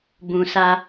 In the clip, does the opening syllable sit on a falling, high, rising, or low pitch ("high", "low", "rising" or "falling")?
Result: low